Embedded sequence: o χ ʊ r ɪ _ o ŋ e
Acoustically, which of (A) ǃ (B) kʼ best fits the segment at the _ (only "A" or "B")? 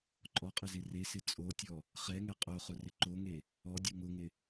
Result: A